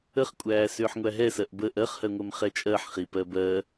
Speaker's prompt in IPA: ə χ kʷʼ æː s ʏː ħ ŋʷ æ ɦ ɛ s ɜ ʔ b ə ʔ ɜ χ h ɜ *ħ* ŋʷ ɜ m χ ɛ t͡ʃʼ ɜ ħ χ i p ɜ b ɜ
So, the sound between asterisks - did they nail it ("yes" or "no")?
no